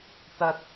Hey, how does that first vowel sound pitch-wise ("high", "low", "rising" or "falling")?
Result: low